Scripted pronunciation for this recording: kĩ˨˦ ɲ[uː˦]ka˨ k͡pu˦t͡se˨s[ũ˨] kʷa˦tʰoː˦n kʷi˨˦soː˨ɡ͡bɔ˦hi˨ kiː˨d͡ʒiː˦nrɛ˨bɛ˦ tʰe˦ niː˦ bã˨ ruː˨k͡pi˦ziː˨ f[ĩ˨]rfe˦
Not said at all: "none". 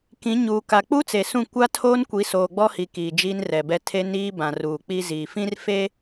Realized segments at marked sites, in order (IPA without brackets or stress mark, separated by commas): uː˨, ũ˦˨, ĩ˦